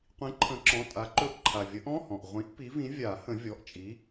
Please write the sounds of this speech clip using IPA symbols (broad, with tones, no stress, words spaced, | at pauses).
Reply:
qʷĩ˨˥ ǃʰə̃˨˥ǁɔ̃˩˧˩tʼa˨˥ ǃɵ˧ʔ ǃʰa˩vʲə˨˥ʔɔ̃˧˥˧ hɔ̃˩ʔ ʁʷĩ˨˩˦ʔ pi˨˥vĩ˨˥ vʲa˨˩˦hə̃˨˩˦ vʲɔ˩˧˩ʔt͡ʃʼi˨˥